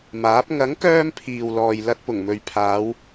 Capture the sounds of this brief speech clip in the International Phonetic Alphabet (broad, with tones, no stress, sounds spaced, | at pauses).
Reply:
m aː˨˥ p̚ ŋ ɐ˨˥ ŋ k œː˧ m pʰ iː˨ w l ɔː˨ j l ɐ˧ t̚ p ʊ˨˩ ŋ m ɵ˨ ɥ pʰ aː˨˧ w